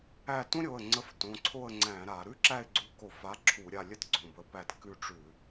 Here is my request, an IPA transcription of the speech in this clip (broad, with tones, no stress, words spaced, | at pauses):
æ˦˨ tũ˥ɾʲo˩˧˩ə̯ ŋ͡ǀə˨˥ftõ˩˧˩ǀʰo˦˨ə̯ ŋ͡ǀæ̃˧˩˧ɾa˧˩˧ ɾʉ˥ǁæ˦˨ɪ̯ɡ͡ǀu˨˥ ko˧˩˧fa˨˥ ǁʰu˧˩˧ɾʲa˦˨ lʲə˥t ɡ͡ǀõ˩˧˩bə˨˥pæ˦˨t kʉ˦˨ʈ͡ʂʉ˧˩˧